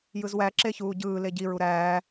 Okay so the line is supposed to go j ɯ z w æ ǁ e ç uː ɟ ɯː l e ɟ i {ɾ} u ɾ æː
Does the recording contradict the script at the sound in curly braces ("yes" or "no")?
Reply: yes